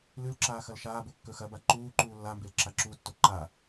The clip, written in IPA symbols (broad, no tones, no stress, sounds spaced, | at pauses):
l ʉ l ǁ aː x ɐ l ʃ aː b o kː ɵ x ɐ b a ǃ uː ǃ uː lː a m b e l ǁ a ǁ u tː o ǃ a